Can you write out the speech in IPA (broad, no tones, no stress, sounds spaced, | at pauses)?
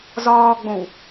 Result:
z ɒː ɡ͡b õ w